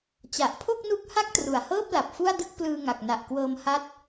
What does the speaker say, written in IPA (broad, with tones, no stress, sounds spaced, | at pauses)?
t͡ɕ a˨˩ ʔ pʰ o˥˩ k̚ n u˦˥ k̚ h a˥˩ k̚ t r u˨˩ a̯ h ɤː˥˩ p̚ l a˨˩ p̚ f u˥˩ a̯ d ɯ˥˩ k̚ p l ɯː˧ ŋ a˨˩ k̚ n a˨˩ ʔ k w ɤː˧ m h a˦˥ t̚